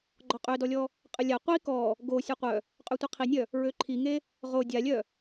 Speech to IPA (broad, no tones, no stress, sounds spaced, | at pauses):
ɡ͡ǃ ɔ qʼ ø d ɔ lʲ ɔ | qʼ ə lʲ a qʷ i k ɔ | ɡ o sʲ ɔ qʷ œ | qʼ ø tʷ i qʰ i nʲ œ | ɹ ø ǃʰ i ŋ e | ʁ o dʲ a lʲ œ